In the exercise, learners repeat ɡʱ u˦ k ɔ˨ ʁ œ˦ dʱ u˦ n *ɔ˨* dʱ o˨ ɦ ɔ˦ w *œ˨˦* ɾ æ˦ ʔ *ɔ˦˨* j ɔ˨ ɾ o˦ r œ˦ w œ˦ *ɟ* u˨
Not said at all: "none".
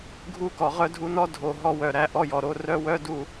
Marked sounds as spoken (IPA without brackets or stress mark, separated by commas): ɔ˦, œ˨, ɔ˦, d